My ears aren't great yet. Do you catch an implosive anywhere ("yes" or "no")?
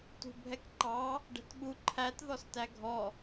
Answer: yes